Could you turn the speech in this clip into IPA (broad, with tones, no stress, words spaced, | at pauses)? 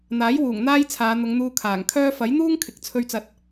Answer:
n̪aː˨˥j wuː˨˩ŋ n̪aː˥j t͡sʰaː˨˧n̪ʊ˨˧ŋn̪uː˧ kʰaː˨˩ŋkʰœː˥ fɐ˨˥jn̪uː˥ŋ kʰɪ˨k̚t͡sʰɵ˧ɥt͡sɐ˨˥t̚